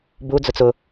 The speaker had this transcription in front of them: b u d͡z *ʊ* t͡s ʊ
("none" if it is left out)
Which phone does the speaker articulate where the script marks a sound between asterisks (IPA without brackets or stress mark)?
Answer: ʊ